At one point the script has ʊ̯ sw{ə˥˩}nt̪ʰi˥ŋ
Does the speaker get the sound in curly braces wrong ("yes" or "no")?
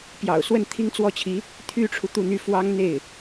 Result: no